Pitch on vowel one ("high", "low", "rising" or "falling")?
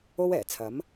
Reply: high